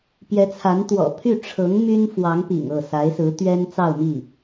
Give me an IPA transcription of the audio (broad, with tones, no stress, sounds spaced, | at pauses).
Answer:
p j ɛ˧˥ t͡sʰ a˧˥ n t̪ w ɔ̰˨˩ pʰ y˥˩ ʈ͡ʂʰ ɤ˧˥ ŋ m y˥ n f w ɑ˧˥ ŋ p ḭ˨˩ ŋ ɤ˥˩ s a˧˥ ɪ̯ s ɹ̩˧˥ t̪ ɥ ɛ˥ n t͡s ɑ˥˧ ʊ̯ m i˥˩